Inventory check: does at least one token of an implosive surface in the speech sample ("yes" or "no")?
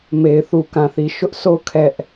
no